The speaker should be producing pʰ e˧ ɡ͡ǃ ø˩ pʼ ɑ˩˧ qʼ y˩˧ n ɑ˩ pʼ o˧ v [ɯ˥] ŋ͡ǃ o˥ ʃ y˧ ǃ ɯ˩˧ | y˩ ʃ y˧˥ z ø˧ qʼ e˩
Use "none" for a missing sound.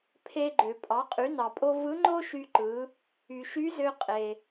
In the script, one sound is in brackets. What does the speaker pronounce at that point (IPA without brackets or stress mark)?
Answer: ɯ˧˥